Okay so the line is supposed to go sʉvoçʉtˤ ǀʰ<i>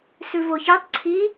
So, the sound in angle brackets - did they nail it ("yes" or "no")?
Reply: yes